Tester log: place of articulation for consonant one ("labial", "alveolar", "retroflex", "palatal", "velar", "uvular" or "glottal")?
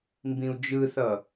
labial